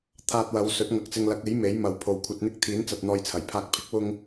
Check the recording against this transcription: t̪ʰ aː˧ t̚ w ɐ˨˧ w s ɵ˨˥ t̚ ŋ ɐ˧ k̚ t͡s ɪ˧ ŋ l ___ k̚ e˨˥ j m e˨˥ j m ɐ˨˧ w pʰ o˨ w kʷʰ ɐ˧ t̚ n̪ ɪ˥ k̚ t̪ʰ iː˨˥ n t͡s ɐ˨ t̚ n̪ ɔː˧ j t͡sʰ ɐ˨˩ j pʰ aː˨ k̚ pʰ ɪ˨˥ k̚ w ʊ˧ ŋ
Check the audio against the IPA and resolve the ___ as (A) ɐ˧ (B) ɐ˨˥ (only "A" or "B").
B